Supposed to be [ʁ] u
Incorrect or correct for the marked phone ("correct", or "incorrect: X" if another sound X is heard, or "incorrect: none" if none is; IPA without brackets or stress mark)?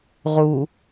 correct